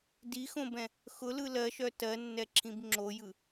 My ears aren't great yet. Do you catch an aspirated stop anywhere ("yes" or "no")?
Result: yes